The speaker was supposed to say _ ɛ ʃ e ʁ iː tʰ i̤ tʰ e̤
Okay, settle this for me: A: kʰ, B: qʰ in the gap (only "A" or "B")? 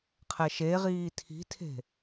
B